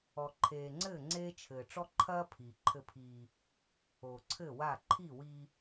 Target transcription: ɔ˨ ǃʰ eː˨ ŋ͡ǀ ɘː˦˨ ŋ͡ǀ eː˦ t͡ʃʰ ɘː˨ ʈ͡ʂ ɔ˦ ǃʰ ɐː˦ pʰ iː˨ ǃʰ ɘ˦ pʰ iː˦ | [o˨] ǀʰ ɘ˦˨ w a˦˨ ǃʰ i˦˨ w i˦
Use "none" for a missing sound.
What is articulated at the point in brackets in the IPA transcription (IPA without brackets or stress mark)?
o˨